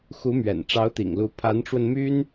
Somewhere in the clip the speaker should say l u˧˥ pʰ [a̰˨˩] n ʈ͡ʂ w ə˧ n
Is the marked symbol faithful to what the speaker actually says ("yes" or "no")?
no